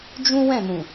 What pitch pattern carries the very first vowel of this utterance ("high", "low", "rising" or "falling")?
high